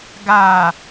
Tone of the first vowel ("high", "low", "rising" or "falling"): low